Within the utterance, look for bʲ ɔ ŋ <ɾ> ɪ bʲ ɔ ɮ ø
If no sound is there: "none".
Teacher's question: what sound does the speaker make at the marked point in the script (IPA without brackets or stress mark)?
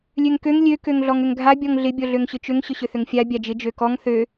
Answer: ɮ